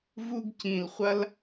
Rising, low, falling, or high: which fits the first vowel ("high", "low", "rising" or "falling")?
high